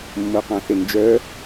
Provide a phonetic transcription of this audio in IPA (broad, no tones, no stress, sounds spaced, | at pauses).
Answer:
mː o q ɑ̃ θ e n d͡ʒ œ